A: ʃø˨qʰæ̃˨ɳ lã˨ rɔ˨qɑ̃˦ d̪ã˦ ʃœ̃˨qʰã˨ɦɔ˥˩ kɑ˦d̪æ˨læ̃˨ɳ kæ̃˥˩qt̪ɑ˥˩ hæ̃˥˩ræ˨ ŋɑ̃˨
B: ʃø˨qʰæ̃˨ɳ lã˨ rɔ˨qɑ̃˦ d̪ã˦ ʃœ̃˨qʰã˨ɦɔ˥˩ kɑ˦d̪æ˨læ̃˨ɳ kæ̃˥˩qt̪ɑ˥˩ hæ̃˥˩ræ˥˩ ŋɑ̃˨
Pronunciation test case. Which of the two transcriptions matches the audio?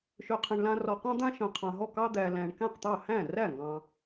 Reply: B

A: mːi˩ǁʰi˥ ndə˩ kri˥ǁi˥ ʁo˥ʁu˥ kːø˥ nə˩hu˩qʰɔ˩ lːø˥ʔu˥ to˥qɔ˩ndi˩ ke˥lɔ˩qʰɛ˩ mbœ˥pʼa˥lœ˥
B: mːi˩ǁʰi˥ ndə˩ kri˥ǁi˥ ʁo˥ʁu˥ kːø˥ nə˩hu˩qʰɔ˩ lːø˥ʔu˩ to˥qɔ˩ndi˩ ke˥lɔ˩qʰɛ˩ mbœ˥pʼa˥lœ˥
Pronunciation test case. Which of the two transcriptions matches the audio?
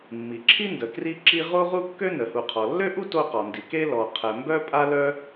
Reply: A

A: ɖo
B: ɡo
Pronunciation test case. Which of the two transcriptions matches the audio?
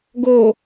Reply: B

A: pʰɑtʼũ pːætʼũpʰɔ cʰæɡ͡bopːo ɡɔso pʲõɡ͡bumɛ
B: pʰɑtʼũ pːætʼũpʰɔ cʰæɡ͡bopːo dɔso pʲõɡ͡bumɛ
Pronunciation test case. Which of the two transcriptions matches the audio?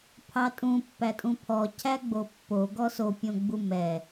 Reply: A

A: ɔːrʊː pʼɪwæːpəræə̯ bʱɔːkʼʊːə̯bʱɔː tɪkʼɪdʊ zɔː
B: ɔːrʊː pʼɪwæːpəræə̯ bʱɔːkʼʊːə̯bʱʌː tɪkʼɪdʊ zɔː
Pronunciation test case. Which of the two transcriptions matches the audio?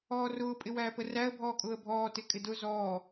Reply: A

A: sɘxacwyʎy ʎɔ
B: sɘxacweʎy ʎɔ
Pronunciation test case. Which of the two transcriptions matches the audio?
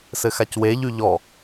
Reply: B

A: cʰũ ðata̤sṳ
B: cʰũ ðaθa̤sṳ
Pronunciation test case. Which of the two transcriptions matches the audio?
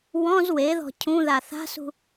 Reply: B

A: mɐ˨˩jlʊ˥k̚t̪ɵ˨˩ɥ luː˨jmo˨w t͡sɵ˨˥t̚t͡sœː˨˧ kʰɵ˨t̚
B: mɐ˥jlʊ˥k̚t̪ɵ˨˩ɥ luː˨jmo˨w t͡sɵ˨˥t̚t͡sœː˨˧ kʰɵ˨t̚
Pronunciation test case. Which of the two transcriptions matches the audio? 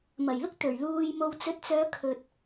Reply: A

